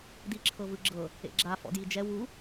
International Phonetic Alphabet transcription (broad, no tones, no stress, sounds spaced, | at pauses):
d i ǁʰ ɤ v ɯ ɡ͡ǁ ɤ | ḛ ɡ͡ǁ a f ɔ̰ d j i d͡ʒ ɛ w u